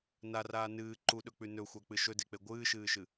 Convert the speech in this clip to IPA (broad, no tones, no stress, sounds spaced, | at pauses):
n a r aː n ɨː ǃ u ɗ ɵ k͡p ʉ n ɵ xʷ a k͡p ɨ ʃ ɵ d e k͡p e ɡʷ ɨː ʃ ɨː ʃ ɨ